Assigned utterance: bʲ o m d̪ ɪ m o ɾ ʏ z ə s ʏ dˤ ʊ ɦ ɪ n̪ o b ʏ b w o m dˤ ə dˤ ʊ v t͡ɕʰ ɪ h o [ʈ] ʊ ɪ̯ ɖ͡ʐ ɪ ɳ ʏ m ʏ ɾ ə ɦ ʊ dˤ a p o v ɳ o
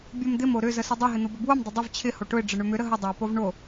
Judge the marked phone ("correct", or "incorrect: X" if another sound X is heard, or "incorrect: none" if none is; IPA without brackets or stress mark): correct